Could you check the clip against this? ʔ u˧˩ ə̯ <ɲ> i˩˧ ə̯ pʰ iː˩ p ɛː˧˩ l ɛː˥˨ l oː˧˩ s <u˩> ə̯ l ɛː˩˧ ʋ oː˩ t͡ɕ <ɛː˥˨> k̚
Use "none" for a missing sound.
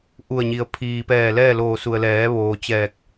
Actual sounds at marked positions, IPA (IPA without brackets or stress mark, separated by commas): ɲ, u˩, ɛː˧˩